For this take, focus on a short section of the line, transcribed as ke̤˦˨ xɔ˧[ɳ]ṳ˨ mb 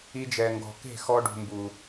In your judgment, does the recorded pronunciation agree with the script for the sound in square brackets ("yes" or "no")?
no